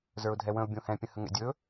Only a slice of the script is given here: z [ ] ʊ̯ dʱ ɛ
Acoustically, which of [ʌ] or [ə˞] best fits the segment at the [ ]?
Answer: ə˞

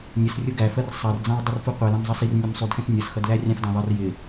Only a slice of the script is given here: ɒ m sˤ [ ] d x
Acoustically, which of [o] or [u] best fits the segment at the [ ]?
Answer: u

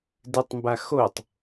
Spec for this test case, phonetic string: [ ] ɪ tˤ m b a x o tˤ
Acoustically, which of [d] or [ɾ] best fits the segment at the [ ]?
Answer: d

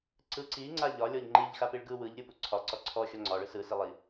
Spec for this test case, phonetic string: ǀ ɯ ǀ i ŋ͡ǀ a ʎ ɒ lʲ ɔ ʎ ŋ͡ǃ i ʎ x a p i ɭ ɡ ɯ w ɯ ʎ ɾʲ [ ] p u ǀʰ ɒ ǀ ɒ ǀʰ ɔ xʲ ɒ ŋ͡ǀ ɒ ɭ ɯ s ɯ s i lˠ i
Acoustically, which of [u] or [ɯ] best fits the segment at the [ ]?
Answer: ɯ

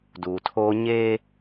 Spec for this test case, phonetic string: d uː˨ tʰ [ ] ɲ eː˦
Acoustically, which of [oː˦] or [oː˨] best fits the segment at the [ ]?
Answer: oː˦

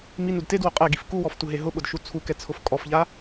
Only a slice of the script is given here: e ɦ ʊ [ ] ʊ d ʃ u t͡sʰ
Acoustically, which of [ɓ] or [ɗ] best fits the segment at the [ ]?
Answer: ɓ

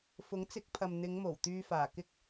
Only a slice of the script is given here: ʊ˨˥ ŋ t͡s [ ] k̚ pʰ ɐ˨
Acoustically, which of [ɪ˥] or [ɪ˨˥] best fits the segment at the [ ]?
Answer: ɪ˨˥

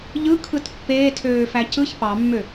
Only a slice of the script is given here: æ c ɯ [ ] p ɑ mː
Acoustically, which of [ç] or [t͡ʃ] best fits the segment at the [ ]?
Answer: ç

